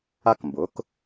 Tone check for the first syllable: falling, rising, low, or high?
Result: high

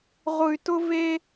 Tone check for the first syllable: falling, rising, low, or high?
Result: low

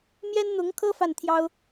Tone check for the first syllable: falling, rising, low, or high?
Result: high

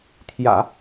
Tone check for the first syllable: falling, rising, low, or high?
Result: low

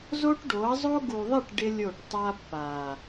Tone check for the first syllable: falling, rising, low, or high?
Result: high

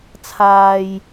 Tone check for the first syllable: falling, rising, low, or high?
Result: low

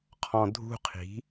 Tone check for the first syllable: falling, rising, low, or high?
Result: low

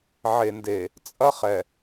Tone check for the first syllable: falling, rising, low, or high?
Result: low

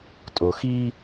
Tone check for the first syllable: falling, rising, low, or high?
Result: low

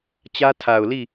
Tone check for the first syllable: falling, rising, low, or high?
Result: high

